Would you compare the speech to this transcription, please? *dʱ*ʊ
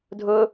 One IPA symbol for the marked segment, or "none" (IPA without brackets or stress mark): dʱ